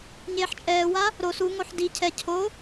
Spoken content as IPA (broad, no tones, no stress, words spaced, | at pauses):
ɲeːħt͡ʃʼɛːwa | ɾo suŋoħ di cʰɛ cʰo